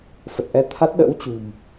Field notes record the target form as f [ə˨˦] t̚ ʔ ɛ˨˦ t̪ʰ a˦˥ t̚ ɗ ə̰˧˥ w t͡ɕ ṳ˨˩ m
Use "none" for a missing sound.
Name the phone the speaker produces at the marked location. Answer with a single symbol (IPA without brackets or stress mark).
ə˨˩